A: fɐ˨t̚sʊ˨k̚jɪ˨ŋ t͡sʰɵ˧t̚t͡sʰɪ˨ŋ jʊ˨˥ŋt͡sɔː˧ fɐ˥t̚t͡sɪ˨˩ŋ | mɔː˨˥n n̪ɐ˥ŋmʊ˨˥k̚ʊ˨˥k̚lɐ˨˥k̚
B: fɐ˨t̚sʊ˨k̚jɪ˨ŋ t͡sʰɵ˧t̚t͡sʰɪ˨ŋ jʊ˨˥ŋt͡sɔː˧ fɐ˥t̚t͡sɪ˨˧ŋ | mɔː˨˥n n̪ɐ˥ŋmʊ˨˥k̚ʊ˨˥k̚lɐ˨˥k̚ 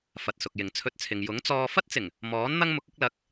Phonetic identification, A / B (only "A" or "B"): A